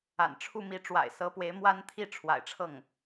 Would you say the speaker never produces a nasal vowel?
yes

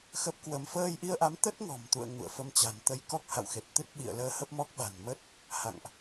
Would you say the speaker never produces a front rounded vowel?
yes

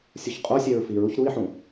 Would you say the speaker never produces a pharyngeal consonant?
no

